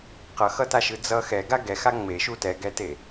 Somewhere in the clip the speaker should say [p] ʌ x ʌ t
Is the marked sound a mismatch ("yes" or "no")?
yes